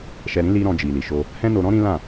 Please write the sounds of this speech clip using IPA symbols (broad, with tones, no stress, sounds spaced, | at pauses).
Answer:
ʃ ɛ˧ ɾ ĩ˦ l i˧ ɾ ɔ̃˧ d͡ʒ i˨ l i˨ ʃ o˧ | h ɛ̃˦ n o˧ ɾ ɔ̃˦ ɾ ĩ˦ l ã˦˨